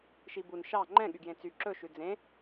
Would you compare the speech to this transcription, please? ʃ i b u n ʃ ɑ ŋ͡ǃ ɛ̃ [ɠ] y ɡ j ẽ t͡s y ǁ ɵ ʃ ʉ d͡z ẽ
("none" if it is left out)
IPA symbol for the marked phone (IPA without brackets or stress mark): ɠ